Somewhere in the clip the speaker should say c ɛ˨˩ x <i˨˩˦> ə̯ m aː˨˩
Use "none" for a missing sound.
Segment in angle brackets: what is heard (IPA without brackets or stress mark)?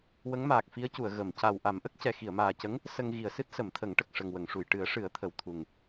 i˨˩˨